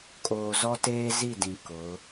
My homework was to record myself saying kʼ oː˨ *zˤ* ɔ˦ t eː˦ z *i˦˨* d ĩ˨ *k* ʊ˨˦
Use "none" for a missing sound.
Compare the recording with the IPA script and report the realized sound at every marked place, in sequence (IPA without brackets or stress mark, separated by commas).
z, i˦˨, k